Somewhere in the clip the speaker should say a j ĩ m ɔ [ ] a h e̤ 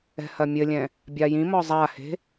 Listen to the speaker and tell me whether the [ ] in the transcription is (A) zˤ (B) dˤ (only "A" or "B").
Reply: A